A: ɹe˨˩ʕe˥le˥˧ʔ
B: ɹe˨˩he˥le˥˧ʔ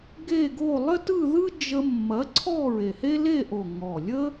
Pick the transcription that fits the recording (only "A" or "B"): B